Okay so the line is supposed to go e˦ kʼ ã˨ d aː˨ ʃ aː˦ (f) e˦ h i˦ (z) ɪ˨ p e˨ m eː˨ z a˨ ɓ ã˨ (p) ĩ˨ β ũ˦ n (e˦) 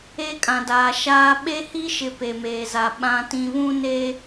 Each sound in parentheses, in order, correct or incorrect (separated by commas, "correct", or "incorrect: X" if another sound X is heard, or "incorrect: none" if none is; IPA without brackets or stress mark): incorrect: ɓ, incorrect: ʃ, incorrect: t, correct